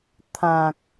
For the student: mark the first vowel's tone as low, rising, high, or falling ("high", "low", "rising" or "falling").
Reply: low